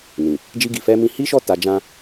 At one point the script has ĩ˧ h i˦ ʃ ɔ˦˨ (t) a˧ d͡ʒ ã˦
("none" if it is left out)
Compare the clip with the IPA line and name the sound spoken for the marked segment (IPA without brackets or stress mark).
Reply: t